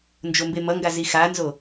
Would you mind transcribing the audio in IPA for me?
n d͡ʒ o m b e m ʌ ŋ ɡ a z i x a n z o

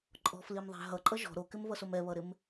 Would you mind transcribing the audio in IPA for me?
ǃʼ ɔ̤ f l i m ðˤ æ̤ ɦ ʌ ǃʼ ʌ ʒ ɔ̤ ɾ o k ɪ m v ʌ s o m ɛ β ʌ ɾ ɪ m

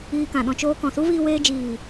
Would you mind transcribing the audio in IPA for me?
iː˧ k ã˨ ɗ ɔ̃˧ t͡ʃ oː˧ k ɔ̃˨ s u˦ v iː˧ w eː˧ d͡ʒ iː˨

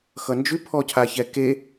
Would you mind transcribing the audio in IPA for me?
x ʌ n d͡ʒ ʉ pʰ ɔ cʰ a ç ɛ k e

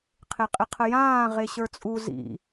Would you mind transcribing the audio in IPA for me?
qʰ e qʼ ɪ qʰ ə j ãː ʁ e ɕ ə˞ t͡sʼ u z ḭ

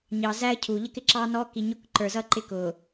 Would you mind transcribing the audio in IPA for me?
ɲ ɑ˨ z æ˦ ə̯ cʰ u˨ ʎ ə˦ k ɪ˨ ǁ ɑ˦ n ɔ˦ k i˨ ɲ ʊ˦ k ǃ ə˞˨ z ʌ˦ ǃ ɪ˦ k ʊ˨

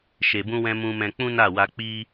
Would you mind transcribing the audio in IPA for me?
ʃ e˨ b ũ˧ w ɛ̃˧ m ũ˧ m ɛ̃˧ k͡p ũ˦ n a˦˨ w a˧ k͡p i˦

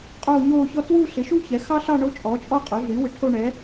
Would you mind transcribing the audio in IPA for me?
qʼ oː˥˧ ɲ oː˥˧ ç ɔ˥ t w u˥˧ ɬ ɪ˩˥ ʃ u˥ ç ɛ˩˥ x ɑ˥ ɬ ɑ˥˧ ɳ o˥ t͡ʃʼ ɔ˩˥ t͡ʃʼ ɔ˥˧ qʼ o˩˥ ɮ yː˩˥ w ɪ˩˥ ʈʰ o˥˧ ɳ ɛ˩˥

